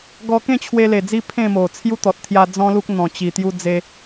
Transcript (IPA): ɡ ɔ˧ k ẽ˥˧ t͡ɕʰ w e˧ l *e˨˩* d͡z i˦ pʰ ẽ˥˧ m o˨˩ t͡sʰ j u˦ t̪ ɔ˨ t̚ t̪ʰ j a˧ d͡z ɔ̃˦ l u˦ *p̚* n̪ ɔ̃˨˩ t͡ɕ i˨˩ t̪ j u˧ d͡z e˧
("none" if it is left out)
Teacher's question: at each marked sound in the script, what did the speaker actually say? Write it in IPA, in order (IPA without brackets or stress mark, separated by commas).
e˨˩, k̚